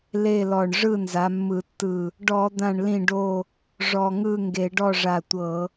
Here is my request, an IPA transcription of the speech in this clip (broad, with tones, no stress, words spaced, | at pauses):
le˥˨lɔ˧˩ɳ ʐɯ˥˨nza˨˦mːɯ˧˩˧tːɯ˧˩ | ɖɔ˧˩˧d̪ã˧˩ɳlĩ˧˩ɖo˧˩ | ʐɔ˧˩ŋɯ˥˨ŋɡe˧˩˧ ɖɔ˥˨ʐa˧˩tʷɤ˧˩˧